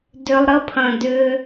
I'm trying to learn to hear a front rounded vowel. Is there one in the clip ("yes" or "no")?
yes